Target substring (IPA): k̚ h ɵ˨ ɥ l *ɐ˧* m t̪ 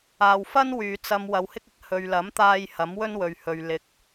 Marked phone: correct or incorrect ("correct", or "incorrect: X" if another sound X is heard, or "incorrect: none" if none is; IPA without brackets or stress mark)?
incorrect: ɐ˨˥